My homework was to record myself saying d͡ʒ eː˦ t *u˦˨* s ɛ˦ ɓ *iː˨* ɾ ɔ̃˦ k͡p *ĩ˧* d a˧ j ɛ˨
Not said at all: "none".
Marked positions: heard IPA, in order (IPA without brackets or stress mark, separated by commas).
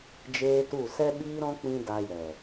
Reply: u˦˨, iː˦, ĩ˧